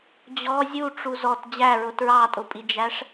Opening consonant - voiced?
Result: yes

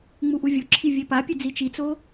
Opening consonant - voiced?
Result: yes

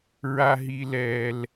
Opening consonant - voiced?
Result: yes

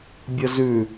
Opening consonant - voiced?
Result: yes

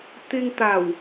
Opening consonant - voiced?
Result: no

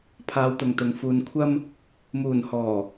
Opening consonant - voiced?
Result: no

